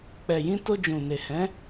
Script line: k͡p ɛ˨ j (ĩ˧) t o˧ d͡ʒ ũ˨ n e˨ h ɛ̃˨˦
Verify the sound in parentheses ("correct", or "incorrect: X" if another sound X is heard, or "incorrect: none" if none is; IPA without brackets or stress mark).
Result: correct